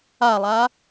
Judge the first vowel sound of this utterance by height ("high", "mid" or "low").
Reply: low